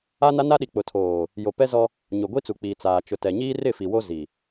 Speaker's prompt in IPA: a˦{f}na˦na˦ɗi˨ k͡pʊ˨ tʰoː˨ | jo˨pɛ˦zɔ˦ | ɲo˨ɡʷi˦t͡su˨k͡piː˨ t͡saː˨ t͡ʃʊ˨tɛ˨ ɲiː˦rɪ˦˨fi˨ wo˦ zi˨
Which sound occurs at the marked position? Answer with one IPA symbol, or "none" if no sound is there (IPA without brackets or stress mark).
none